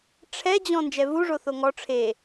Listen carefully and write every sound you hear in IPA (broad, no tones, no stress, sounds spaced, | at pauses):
ʈ͡ʂʰ ɛ d͡ʑ ɔ̃ n d͡ʒ ɛ v u ʐ o θ o ŋ ɔ ʈ͡ʂʰ e